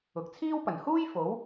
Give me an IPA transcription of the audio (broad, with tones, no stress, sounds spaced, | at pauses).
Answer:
ʊ˨ k̚ t͡sʰ iː˥ w p ɐ˨˩ n h uː˥ j f o˨˥ w